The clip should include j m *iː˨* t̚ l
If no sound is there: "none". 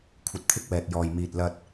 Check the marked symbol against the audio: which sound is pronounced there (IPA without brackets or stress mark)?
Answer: iː˨